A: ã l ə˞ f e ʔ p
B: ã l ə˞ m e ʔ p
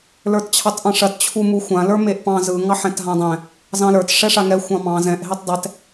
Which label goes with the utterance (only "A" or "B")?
B